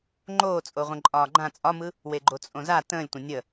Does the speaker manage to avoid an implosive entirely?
yes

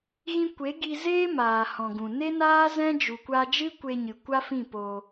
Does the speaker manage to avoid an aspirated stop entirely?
yes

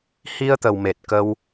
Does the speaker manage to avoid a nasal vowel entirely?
yes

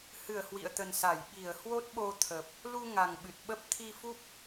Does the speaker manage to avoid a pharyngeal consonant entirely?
yes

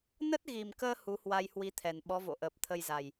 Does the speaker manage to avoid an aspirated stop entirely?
no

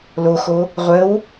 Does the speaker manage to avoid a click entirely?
yes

